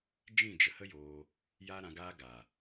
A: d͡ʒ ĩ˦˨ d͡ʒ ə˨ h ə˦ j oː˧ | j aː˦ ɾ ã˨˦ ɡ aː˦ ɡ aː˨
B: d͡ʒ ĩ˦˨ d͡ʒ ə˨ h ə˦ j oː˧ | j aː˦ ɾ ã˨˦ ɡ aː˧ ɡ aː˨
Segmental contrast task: A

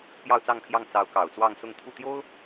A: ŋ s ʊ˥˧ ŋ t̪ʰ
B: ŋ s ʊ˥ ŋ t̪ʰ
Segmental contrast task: A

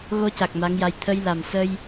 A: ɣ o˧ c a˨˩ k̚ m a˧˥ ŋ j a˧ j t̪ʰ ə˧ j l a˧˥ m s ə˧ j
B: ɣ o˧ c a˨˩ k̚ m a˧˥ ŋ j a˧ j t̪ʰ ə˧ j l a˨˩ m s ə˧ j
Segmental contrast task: B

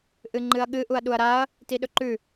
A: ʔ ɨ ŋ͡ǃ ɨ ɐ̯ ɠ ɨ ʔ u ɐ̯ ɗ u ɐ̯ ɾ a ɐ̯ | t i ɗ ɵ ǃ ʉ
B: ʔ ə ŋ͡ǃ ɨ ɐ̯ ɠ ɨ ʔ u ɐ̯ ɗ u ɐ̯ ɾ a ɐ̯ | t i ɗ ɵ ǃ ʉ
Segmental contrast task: A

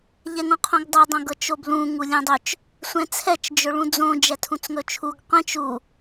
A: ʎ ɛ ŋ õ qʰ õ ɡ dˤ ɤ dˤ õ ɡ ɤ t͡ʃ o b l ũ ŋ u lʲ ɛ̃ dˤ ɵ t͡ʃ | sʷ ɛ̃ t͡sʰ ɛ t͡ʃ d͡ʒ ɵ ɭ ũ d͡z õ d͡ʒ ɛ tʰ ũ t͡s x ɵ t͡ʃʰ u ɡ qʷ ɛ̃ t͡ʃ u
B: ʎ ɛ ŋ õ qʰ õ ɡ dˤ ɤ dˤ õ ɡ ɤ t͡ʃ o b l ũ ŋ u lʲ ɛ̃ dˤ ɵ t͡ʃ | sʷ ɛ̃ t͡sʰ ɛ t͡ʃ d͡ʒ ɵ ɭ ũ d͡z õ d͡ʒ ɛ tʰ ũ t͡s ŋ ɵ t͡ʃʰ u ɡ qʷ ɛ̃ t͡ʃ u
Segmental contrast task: B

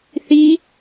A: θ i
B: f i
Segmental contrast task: A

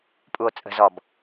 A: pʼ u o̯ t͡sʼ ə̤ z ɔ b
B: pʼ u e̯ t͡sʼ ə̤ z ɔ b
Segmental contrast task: A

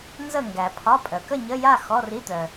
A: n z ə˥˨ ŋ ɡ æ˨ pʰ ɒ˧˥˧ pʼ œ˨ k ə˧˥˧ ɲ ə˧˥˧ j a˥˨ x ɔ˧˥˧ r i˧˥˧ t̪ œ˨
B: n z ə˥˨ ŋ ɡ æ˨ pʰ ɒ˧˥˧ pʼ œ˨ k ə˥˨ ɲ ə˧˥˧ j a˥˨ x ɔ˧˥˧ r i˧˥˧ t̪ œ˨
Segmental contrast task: B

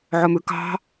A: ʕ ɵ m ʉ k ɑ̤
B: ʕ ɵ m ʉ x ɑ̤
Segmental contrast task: A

